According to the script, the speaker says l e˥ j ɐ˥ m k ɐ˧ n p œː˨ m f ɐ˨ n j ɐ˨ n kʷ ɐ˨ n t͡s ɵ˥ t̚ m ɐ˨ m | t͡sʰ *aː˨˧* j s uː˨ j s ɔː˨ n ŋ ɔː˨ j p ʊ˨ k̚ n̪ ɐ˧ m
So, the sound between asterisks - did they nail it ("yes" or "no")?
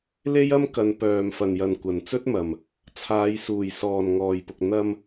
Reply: yes